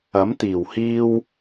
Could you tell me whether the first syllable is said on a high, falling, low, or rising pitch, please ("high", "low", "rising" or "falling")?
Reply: rising